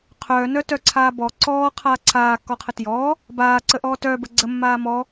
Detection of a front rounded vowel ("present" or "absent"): present